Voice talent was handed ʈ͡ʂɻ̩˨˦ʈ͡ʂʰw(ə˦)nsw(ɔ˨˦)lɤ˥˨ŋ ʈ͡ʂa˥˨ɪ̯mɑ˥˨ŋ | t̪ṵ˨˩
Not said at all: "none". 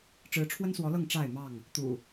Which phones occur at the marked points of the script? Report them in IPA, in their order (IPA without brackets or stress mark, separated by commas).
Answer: ə˦, ɔ˨˦